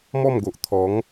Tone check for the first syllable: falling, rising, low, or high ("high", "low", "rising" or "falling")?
falling